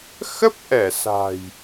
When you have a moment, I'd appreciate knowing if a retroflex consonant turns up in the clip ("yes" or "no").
no